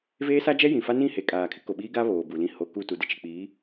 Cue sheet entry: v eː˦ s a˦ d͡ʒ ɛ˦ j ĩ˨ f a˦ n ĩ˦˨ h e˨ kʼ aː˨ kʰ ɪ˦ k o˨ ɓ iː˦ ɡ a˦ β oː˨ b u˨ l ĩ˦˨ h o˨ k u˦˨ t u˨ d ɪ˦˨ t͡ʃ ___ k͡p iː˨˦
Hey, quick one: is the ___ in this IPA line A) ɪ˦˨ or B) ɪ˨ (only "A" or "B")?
B